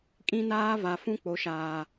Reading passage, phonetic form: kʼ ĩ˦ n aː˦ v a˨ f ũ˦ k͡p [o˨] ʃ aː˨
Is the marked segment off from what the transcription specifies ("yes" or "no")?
no